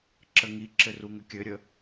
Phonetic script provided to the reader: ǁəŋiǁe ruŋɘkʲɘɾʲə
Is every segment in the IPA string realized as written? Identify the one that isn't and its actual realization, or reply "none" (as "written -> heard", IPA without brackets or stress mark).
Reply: e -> ɘ